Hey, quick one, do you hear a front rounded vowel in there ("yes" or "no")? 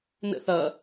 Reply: no